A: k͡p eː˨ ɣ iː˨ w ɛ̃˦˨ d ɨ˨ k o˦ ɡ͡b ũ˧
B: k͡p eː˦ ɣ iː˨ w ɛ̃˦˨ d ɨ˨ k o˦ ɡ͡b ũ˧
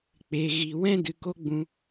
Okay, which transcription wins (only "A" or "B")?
A